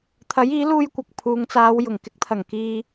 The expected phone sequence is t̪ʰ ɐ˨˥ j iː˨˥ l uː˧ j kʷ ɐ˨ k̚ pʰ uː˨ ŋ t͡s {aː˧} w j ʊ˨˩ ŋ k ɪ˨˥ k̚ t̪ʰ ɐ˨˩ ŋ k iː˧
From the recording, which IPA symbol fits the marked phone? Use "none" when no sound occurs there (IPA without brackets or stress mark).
aː˨˧